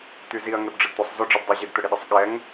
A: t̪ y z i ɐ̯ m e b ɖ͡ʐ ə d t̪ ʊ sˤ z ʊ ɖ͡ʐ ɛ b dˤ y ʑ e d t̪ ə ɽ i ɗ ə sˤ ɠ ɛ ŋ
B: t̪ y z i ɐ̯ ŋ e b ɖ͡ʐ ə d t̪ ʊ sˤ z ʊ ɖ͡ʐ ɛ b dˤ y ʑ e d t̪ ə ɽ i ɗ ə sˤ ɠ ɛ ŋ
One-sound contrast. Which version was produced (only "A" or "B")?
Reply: B